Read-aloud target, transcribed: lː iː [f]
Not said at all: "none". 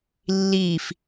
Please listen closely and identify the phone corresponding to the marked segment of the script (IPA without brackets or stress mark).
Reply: f